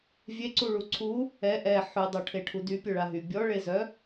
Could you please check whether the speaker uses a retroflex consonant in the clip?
yes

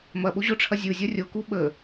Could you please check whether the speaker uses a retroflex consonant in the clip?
yes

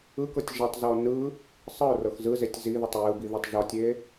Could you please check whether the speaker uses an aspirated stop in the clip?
no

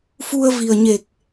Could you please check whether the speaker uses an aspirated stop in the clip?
no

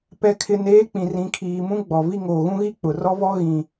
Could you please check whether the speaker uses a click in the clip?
no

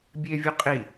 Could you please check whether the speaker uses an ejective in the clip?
yes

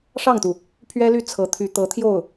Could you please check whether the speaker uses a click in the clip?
no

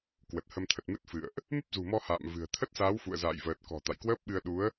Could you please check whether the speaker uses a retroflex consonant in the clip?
no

